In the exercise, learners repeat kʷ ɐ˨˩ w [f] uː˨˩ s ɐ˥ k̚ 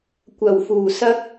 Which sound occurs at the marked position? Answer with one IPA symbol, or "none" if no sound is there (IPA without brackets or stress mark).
f